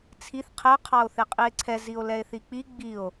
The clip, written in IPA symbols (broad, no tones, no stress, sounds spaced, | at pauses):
t͡sʰ i θ qʰ ɛ qʰ ɑ o̯ θ e qʼ i e̯ ǀʰ ɛ z i o̯ l ɛ e̯ θ i k͡p i ɡ͡b i o̯